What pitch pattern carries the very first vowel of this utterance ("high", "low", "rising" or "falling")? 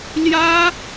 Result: high